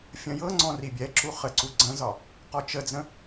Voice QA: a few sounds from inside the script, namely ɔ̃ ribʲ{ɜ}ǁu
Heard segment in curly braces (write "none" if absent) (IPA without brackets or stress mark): ɛ